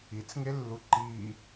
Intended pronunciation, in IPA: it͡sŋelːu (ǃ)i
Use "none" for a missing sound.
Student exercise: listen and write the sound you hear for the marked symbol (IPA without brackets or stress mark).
ǃ